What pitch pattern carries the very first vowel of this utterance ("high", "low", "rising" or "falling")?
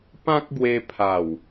high